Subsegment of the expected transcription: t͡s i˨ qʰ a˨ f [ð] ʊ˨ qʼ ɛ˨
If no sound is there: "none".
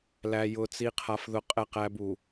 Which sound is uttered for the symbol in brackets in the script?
ð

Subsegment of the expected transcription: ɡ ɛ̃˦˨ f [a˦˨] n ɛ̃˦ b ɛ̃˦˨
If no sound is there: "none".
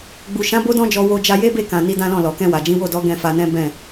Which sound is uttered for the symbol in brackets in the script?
a˧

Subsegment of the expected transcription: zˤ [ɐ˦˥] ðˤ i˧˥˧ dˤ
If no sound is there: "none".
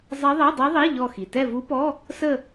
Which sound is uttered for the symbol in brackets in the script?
ɐ˦˥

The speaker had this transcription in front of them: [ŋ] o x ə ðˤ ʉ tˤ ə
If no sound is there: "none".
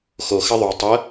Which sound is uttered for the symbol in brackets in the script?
x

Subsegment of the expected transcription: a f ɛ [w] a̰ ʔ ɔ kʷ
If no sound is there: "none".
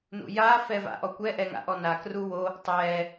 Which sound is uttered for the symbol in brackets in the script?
v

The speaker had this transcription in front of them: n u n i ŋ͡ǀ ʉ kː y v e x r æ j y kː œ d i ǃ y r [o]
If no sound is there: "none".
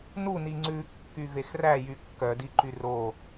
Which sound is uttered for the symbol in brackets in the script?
o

